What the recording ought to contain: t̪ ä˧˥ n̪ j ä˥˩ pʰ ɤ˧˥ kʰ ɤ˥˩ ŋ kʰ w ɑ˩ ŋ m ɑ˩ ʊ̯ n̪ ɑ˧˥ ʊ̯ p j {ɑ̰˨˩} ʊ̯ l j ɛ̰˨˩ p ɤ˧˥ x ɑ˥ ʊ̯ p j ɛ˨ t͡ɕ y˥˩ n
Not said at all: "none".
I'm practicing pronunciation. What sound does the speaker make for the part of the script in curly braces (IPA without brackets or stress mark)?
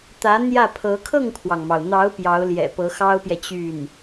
ɑ˧˥